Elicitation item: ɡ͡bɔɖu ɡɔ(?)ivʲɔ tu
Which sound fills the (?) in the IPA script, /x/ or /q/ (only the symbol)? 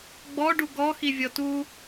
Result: x